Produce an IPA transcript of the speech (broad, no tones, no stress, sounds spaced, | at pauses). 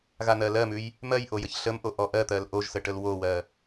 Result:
ɣ a n̪ ɜ l ɜ m ʉ j | m ɜ j ʔ o j ə ç ɬ ə m ʔ o ʔ ɔ ʔ ɜ t̪ ɜ l ʔ o ʒ s ə ʈ ə l w o w ɜ